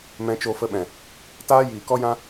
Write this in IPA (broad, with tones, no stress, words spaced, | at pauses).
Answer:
mɛ̃˧t͡ʃo˧fə˧ɓɛ̃˨ | taː˦jiː˨kɔ˦ jã˦